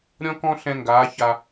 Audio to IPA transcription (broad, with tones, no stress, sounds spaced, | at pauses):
ɾʲ ɔ̃˥ k ɔ̃˥ ɬ ɛ̃˥ ŋ ɡ aː˧˥ ç a˧